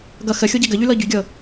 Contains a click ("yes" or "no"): no